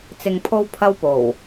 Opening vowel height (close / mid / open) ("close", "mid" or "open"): close